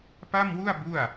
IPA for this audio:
p a˥˩ m w u˥˩ a̯ b u˥˩ a̯

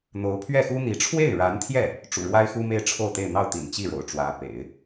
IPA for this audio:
n̪ o˧˥ ʊ̯ pʰ ɥ ɛ˥˩ x u˥ n̪ i˧˥ ʈ͡ʂʰ w e˥˩ ɪ̯ ɻ a˧˥ n t̪ʰ j ɛ˥˩ | ʈ͡ʂ ṵ˨˩ ɻ w a˥ ɪ̯ x u˥ m e˥˧ ɪ̯ ʈ͡ʂʰ o˥˧ ʊ̯ t̪ e˥˧ ɪ̯ n̪ ɑ˥˩ ʊ̯ t̪ ḭ˨˩ n t͡ɕ i˥˩ ɻ o̰˨˩ ʊ̯ ʈ͡ʂ w ä˧˥ p ḛ˨˩˦ ɪ̯

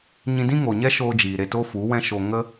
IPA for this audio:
ɲ ĩ˧ d ĩ˦ ŋ o˨ ɲ ɛ˦ ʃ oː˧ d͡ʒ iː˨ ɾ e˧ t o˦ f u˨˦ w ɛ̃˦ ʃ o˧ ŋ ə˦

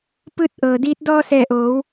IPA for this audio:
p ɯː˧ t̚ ʔ ɤː˩ d iː˧˥ t̚ d ɔː˧ s ɛː˧˩ ʔ oː˩˧ w

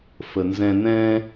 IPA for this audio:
f ə˩ n z ɛ̃˧ n ɛ̃˧

